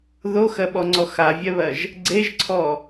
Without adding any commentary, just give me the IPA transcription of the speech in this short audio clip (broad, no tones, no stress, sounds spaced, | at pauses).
ð o x ɜ ɓ ɔ ŋ͡ǀ ɔ x a vʲ ɛ β ɜ ʒ | ɡ͡ǀ e ʒ ǀʰ ɔ